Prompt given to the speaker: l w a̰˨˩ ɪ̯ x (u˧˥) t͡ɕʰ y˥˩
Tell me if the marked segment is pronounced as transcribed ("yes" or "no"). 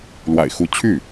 yes